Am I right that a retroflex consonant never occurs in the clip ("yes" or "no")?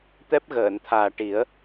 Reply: no